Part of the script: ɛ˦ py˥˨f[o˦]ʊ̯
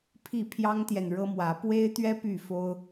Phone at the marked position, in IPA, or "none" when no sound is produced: o˦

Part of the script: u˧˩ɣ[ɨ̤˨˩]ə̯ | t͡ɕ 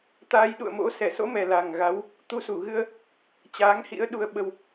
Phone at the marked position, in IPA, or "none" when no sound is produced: ɨ˧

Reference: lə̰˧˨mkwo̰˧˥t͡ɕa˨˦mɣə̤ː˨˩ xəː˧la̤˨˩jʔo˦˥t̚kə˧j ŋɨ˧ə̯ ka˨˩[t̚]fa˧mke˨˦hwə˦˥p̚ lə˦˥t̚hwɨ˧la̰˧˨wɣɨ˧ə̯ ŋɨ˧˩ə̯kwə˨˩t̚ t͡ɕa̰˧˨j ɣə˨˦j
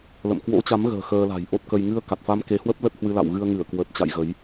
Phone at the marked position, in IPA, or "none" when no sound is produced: t̚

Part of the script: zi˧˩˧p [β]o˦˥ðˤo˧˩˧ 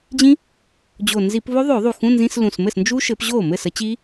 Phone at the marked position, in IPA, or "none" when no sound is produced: β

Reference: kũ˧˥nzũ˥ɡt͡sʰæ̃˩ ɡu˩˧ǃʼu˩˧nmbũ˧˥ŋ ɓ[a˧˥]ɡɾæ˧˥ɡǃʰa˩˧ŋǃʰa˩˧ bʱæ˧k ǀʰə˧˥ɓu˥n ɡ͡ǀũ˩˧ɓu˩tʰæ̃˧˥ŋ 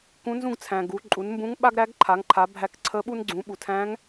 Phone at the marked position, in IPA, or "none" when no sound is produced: a˥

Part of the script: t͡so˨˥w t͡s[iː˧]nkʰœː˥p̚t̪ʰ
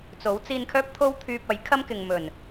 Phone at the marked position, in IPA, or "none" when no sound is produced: iː˧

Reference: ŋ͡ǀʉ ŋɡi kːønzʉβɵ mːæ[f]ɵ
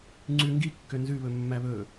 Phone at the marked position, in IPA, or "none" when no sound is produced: β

